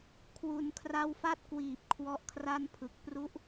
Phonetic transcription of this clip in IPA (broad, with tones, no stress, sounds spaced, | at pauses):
kʰ w u˩˦ n kʰ r a˦˥ w f a˥˩ t̚ k w iː˨˩ p̚ kʰ w ɔ˦˥ ʔ kʰ r a˥˩ n pʰ ɯ˨˩ k̚ p r u˦˥ ʔ